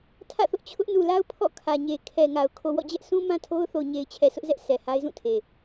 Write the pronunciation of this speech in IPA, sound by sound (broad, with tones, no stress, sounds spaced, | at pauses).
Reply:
tʰ ä̰˦˨ θ ʊ˦ ʔ t͡ɕʰ ʊ˦ ʔ n u˨ l a˦ ʊ̯ pʰ ɔ̰˦˨ kʰ ä˨ ɲ e˨ kʰ ɛ˨ ŋ a˨ ʊ̯ kʰ o˨ w ɔ̰˦˨ d͡ʑ ɛ˦ ʔ s ũ˦ m ã˦ tʰ o˦ ʊ̯ θ o˨ ʊ̯ ɲ e˨ ɪ̯ t͡ɕʰ ɛ˨ sʰ ʊ˦ ʔ z ɛ˦ ʔ sʰ ɛ˨ h a˦ ɪ̯ z ũ˦˨ tʰ e˨